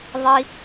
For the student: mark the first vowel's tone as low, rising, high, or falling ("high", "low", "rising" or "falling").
high